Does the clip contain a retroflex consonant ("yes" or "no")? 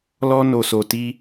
no